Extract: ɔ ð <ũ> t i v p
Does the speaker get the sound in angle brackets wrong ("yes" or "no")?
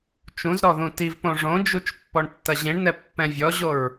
no